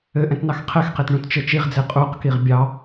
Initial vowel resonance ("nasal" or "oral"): oral